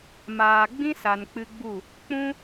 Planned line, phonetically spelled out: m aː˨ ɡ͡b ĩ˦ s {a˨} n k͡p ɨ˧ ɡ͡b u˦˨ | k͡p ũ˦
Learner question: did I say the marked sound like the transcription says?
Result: yes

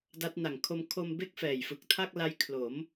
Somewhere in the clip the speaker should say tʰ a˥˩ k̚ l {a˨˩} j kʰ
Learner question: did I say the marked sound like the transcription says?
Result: no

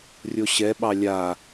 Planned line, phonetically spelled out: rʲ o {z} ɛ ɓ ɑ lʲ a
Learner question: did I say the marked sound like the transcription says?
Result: no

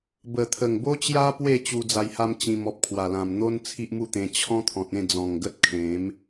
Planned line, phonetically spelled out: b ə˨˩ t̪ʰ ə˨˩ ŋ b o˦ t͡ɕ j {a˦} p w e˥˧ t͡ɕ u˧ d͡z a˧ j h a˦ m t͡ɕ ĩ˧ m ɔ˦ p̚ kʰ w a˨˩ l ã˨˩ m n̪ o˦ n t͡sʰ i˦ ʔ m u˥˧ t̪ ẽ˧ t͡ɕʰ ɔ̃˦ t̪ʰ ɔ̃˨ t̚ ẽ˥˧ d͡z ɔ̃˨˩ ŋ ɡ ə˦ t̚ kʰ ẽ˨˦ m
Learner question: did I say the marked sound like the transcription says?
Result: yes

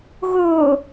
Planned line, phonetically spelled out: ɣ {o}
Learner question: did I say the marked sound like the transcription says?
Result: yes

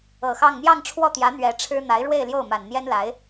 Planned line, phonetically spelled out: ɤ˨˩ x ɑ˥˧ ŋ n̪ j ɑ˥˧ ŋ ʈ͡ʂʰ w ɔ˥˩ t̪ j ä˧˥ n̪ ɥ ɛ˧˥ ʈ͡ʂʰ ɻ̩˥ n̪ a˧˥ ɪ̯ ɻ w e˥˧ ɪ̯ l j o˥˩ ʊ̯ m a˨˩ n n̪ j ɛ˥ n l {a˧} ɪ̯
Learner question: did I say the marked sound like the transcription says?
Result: no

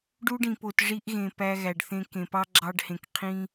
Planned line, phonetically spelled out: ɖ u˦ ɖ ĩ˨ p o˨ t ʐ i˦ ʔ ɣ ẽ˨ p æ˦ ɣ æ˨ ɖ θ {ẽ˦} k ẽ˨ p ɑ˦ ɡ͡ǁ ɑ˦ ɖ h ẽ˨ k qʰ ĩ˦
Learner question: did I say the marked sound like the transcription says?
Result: yes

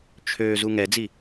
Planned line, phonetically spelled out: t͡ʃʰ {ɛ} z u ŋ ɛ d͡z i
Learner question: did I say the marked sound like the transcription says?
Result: no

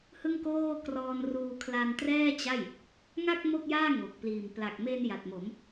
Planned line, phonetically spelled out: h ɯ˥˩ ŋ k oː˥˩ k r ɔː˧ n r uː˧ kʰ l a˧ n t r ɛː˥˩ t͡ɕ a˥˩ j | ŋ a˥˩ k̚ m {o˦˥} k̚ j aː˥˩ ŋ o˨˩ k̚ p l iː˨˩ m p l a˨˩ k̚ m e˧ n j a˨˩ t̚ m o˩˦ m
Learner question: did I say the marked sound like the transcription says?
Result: no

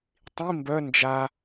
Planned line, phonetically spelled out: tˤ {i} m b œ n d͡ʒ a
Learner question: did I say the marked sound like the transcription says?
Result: no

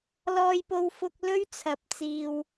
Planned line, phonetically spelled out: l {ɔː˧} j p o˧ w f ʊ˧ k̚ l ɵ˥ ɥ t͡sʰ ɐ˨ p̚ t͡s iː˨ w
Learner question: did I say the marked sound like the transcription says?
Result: yes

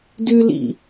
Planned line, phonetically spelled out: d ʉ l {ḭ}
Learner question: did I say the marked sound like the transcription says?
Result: yes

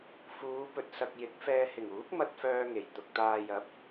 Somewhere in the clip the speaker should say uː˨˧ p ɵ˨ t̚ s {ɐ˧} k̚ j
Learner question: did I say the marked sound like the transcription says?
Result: no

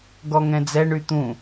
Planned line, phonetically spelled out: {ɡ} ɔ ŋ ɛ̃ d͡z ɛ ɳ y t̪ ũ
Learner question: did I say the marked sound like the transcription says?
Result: yes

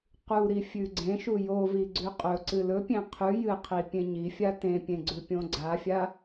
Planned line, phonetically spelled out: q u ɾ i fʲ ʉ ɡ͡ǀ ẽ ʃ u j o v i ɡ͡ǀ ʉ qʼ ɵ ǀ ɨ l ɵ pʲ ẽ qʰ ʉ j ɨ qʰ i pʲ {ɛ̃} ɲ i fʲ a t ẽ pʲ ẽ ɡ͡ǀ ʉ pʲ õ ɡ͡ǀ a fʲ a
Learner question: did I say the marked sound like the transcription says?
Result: no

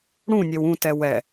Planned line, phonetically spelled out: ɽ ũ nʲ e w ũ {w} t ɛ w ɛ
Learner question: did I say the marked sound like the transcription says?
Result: no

